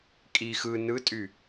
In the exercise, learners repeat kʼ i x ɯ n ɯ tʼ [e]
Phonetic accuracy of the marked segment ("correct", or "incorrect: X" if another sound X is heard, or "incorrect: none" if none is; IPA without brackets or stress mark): incorrect: y